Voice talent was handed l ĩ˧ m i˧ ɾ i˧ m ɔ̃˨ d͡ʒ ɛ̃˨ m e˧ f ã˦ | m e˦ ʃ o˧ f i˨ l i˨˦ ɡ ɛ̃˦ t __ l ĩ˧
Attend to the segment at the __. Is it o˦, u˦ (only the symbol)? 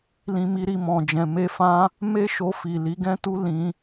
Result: u˦